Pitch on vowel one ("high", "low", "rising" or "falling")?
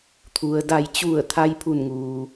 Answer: low